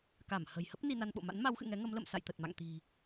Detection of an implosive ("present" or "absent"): present